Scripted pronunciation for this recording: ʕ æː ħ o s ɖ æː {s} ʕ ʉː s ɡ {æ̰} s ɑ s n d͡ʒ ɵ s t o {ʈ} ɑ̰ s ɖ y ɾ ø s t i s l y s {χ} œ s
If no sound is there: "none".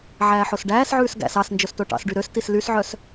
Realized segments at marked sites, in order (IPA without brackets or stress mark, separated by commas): s, æ̰, ʈ, ʕ